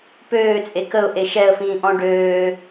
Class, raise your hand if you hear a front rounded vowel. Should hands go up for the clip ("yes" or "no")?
yes